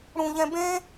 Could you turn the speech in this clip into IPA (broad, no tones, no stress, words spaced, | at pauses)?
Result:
ɽũʎɛ̃ bẽ